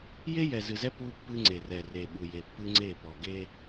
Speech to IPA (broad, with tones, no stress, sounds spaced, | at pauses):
j e˦ j ɛ˨ z ɨ˨ z ɛ˦ p u˦ pː ɨ˦ ŋ͡ǀ e˨ r ɛ˨ r e˨ ɓ u˨ j e˨ pː ɨ˦ ŋ͡ǀ e˦˨ p ɔ˨ ɡ e˦